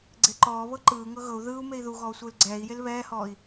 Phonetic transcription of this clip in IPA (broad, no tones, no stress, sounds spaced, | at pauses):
ɡ͡ǀ e ǃ ɔː β ɤ ǃ ɯː ŋ ɤ ɣ ɤ u̯ ð ɯː u̯ m e i̯ ð u ɣ ɔː sʷ ɯː l ɡ͡ǀ ɛː i̯ j e l β ɛː h ɔː i̯